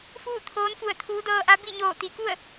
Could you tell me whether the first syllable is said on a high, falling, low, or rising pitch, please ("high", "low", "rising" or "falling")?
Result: falling